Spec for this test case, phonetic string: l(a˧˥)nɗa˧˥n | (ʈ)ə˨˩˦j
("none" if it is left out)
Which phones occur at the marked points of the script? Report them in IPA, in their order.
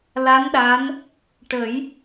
a˧˥, ʈ

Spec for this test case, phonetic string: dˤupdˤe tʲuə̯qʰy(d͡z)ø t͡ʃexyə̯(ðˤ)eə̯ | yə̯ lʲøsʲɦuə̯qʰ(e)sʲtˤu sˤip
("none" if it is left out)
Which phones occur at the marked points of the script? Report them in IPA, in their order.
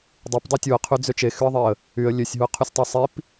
d͡z, ðˤ, y

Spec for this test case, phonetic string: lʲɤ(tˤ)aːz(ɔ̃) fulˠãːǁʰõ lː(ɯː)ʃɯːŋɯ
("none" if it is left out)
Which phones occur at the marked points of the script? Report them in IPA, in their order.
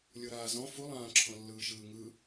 ɾ, ɔ̃, ɯː

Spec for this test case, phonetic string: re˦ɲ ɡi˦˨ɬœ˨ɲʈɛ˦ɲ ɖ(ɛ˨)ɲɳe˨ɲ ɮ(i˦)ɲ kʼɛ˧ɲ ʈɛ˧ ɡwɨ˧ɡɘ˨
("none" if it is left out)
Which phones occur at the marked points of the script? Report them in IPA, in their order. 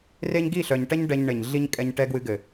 ɛ˧, i˦

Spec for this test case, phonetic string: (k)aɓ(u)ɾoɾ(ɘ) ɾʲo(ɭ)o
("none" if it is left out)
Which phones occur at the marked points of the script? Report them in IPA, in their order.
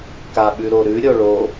k, ʉ, ʉ, ɭ

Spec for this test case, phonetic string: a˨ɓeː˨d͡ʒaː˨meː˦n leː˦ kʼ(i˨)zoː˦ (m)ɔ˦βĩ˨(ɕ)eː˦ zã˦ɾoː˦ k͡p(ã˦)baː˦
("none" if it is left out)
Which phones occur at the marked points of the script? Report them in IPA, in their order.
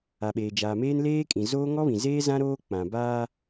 ĩ˨, ŋ, z, ã˨

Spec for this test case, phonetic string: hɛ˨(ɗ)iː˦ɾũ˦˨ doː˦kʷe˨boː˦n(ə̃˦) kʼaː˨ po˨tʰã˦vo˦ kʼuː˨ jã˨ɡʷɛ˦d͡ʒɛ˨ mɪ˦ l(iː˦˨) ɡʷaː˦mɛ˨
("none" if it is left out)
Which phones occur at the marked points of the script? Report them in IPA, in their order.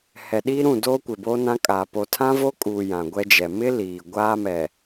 ɗ, ã˦, iː˨

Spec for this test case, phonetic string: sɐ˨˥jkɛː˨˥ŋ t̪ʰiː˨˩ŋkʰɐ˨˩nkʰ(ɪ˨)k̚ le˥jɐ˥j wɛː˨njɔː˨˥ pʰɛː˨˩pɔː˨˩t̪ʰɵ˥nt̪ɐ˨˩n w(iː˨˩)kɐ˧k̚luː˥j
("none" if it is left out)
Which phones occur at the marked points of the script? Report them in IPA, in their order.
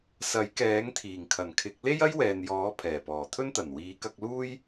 ɪ˨˥, iː˨˧

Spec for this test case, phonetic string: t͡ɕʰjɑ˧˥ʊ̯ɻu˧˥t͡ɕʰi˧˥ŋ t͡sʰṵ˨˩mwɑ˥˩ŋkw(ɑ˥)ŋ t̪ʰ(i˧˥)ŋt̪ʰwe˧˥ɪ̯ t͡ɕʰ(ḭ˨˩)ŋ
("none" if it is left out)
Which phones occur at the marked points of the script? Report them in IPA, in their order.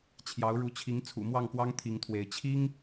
ɑ˥, i˧˥, i˥

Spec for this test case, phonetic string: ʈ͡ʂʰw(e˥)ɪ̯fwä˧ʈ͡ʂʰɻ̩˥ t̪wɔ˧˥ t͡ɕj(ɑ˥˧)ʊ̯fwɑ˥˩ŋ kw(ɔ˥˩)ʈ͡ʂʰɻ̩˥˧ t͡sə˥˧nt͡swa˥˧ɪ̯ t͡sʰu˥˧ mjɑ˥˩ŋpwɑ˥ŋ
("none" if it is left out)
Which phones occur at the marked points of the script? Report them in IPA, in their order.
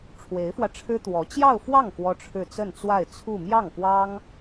e˧˥, ɑ˥˧, ɔ˥

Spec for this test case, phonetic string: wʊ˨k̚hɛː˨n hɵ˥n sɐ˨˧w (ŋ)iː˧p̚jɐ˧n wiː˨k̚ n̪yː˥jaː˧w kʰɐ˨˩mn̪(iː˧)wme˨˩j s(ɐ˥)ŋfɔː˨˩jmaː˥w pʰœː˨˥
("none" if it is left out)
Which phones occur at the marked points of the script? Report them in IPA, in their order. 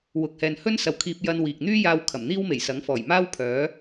kʰ, iː˥, ɐ˨˥

